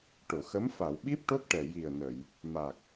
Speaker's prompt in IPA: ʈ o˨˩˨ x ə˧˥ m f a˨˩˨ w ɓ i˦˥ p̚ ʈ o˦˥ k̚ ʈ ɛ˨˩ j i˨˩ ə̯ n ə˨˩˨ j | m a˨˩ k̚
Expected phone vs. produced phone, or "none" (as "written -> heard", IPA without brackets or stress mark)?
none